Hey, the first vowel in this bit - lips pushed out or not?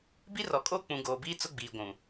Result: no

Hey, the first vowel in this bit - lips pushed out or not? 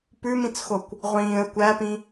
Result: yes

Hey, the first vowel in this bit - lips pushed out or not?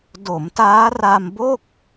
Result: yes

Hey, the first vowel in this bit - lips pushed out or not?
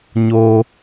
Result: yes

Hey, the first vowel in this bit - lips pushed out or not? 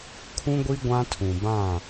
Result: yes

